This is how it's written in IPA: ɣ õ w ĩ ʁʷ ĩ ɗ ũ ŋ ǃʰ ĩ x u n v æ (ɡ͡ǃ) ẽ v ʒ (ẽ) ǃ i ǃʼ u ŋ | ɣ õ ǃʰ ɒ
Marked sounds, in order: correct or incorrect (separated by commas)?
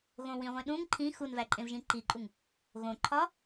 incorrect, incorrect